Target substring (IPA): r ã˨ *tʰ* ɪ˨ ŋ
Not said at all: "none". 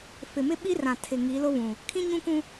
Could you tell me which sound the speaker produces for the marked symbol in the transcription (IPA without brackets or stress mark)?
tʰ